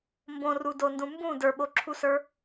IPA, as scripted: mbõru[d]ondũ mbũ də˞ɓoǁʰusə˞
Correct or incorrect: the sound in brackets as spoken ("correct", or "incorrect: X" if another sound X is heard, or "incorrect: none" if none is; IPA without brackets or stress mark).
correct